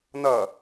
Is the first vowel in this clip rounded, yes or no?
no